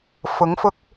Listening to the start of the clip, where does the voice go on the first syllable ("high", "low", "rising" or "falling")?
rising